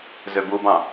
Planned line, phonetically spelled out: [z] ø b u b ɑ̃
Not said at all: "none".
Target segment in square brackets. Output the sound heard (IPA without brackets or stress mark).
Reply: z